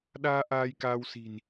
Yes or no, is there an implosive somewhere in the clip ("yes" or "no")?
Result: yes